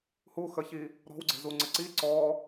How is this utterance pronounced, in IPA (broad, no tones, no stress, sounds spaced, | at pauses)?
h u x ə ç i | ɾ ɔ̤ w ɡ͡ǀ e̤ z u ŋ͡ǀ ə ǀ i ǀ ɔ